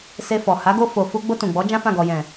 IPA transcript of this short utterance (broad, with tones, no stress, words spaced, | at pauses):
se˧fɔ˨ ha˨˦ɡo˧ fo˨ fu˧ ɡ͡bo˧tũ˨ɡ͡bɔ˨˦ d͡ʒã˦fã˦˨ ɡɔ˨jɛ̃˨